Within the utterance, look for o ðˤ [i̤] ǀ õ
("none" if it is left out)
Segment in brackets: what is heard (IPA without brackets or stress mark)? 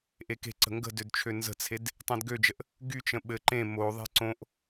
e̤